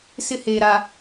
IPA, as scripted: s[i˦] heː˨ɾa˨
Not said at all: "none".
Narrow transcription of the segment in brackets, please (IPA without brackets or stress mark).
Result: ɪ˦